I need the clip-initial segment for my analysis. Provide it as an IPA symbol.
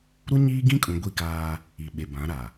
ɾ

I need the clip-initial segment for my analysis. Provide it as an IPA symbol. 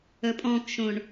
ə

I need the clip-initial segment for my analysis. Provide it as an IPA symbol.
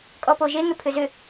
kʼ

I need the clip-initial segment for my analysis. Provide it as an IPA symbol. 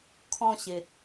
kʰ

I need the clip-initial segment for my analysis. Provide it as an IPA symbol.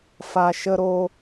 f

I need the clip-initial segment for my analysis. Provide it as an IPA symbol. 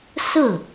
s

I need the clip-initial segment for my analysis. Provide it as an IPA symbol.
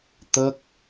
t̪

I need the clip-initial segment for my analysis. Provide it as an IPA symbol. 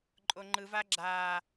ǃʼ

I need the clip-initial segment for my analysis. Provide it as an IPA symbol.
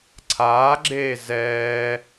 ǀʰ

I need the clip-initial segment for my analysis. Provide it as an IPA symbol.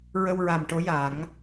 ɹ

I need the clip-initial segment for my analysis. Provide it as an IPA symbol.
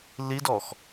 l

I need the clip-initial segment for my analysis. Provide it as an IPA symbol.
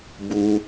b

